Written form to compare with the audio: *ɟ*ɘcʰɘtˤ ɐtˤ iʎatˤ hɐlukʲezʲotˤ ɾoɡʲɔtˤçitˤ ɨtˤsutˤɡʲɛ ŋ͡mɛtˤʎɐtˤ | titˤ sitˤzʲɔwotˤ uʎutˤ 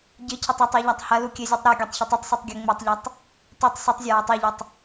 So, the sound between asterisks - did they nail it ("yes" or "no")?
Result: yes